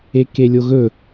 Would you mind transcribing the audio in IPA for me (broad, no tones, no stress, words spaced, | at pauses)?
ekelʲoɣɵ